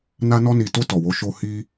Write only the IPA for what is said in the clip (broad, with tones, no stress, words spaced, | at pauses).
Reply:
na˧nɔ˧ni˨to˧ tɔ˨wo˨˦ʃo˧ hi˧